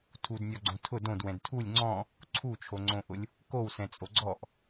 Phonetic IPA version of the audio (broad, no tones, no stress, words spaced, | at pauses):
tʰudnʲɔɡ͡ǀõ tʰʊ dõdwɛ̃d tʰulʲ ŋ͡ǀɔ̃ | ǀʰut͡ʃʰoŋ͡ǀõʔʊlʲ | kowsɛ̃t͡sʼo ɡ͡ǀɔʔ